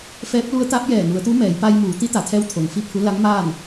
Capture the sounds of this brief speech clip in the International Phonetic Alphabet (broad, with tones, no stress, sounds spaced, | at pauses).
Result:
f ɛː˧˥ p̚ l u˧˥ ə̯ t̪ a˧˥ p̚ j ɛː˧˩ n u˩˧ ə̯ t̪ u˧˥ m ɛː˩˧ j p a˧ j m uː˩˧ t̪ i˧˥ t̪ a˩ t̪ʰ ɛː˧˥ w t̪ʰ o˩ ŋ f i˥˨ pʰ u˧˥ l a˧˥ ŋ m aː˥˨ n